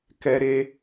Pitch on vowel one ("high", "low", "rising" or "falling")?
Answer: high